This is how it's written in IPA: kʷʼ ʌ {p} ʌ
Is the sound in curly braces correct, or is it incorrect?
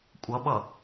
incorrect